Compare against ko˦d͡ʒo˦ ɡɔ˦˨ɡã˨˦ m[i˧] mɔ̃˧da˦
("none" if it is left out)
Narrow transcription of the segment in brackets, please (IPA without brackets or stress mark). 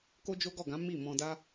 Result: i˦˨